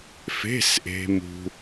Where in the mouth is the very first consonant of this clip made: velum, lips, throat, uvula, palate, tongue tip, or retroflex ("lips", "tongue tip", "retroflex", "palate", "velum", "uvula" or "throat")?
lips